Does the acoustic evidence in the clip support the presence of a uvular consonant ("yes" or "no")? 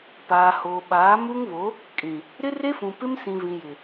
no